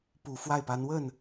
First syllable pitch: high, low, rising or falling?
low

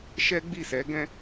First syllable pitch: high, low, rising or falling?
high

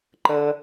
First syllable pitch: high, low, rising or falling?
high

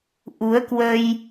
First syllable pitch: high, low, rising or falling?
rising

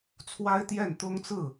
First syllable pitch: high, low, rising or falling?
high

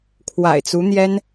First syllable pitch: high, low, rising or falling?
low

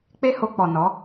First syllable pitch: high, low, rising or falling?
high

